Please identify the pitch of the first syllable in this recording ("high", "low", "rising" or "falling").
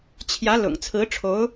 rising